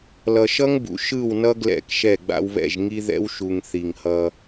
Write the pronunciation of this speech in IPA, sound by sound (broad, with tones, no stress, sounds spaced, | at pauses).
l ʌ˨ ʃ ʌ˦ ŋ b ṵ˨ ʃ ɯ˦˨ w n ʌ˦ ɡ l ɛ̰˦˨ k ʃ ɛ˦˨ ɡ͡b a̰˦ w β ɛ̰˦˨ ʒ ŋ i˦ ð ɛ̰˦ w ʃ u˨ ŋ θ i˨ ŋ h ʌ˦